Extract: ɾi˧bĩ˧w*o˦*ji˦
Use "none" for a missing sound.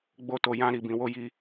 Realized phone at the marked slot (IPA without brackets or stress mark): o˦